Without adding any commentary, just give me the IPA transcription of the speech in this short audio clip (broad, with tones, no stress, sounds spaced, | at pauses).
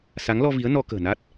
s a˨˦ ŋ l ɔ˧ v i˨˦ ə̯ n ɔ˧ k ə̤ː˨˩ n a˦˥ t̚